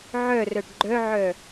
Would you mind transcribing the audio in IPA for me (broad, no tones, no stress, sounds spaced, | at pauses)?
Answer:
ʕ œ r œ ɖ ɡ͡ǃ œ ʕ œ